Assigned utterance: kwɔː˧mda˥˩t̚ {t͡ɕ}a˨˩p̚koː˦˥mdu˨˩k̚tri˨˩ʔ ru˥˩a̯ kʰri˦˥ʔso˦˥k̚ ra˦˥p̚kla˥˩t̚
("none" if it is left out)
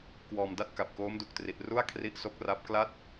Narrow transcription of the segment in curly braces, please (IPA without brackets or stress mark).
k